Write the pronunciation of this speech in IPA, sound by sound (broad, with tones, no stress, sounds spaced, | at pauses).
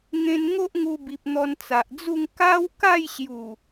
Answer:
ŋ ẽ˦ n ŋ o˦ ʔ ŋ u˧ b i˨ p̚ n̪ ɔ˧ n t͡s a˨ ʔ d͡z u˥˧ ŋ k a˦ w k a˥˧ j ɕ j u˨˩